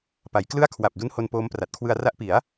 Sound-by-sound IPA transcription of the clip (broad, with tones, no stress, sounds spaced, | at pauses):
p a˩˦ j k l ɯ˥˩ a̯ kʰ w a˨˩ p̚ d u˦˥ n h o˧ n p oː˦˥ m p r a˨˩ t̚ kʰ w ɯ˧ a̯ r a˦˥ ʔ p i˩˦ a̯